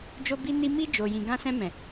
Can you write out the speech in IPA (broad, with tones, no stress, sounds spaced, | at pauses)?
d͡ʒ o˧ b i˧ n i˧ m i˧ d͡ʒ o˨ j ĩ˨ ɡ ã˧ s ɛ̃˧ m ɛ̃˨